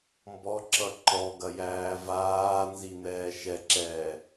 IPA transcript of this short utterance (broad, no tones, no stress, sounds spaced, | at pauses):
m b ɔ ǁ ʌ ǃ ɔ ɡ ɐ j æː v aː n z i n̪ ɛː ʃ ɛ ǁ ɛː